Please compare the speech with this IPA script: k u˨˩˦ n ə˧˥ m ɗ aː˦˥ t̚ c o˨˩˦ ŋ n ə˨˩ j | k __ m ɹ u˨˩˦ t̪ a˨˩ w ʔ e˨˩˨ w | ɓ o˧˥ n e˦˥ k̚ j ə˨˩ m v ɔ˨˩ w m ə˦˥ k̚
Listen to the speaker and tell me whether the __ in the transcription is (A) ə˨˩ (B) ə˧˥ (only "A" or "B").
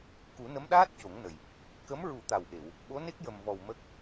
B